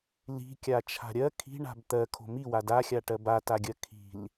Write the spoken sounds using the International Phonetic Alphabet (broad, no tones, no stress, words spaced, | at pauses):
li̤kʲa t͡ʃʰa̤ɾʲɜ kʰi̤ɳa̤b t̪ɜkʰo̤ miwa daxʲaʈɜ bataɡʲɜ kʰi̤l